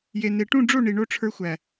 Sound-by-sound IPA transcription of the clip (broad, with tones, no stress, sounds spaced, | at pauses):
j e˨ n e˨ ʈ ũ˦˨ ɖ͡ʐ o˦˨ ɳ i˨ ɳ o˧ ʈ͡ʂʰ ə˞˧ xʷ æ˨